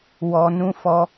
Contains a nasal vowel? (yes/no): yes